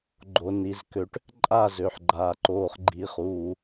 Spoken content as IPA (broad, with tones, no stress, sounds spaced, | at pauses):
ɡ͡ǃ o˩ n i˩ z k ø˩ ʈ | ǃʼ a˥˩ z ø˩ ħ ɡ͡ǃ aː˩ ǃ oː˩ χ ɡ͡ǃ i˩ χ uː˩